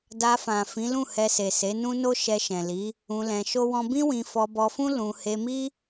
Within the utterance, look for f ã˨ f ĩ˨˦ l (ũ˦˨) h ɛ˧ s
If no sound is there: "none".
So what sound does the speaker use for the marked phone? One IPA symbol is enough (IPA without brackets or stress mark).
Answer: ũ˦˨